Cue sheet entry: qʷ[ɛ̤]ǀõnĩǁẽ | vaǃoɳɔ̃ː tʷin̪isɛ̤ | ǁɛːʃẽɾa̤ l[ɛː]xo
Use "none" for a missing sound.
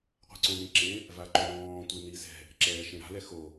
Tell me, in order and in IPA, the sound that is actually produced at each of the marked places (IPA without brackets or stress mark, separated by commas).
ɛ̤, ɛ